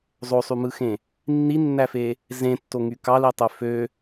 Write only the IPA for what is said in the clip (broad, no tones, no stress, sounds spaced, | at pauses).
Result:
zˤ o sˤ y m ɯ x ẽ | nː i nː æ f e | z ẽ tː o ŋ y k ɑ l i tˤ ø f ø